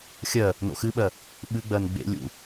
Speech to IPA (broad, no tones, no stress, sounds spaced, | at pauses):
xʲ ɜ | n o̰ x ɨ ɓ ɜ | ɓ ɨ ɡ͡b ɜ n ɡ͡b ḛ lʲ ṵ